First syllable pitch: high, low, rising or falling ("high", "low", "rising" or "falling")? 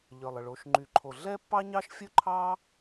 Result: low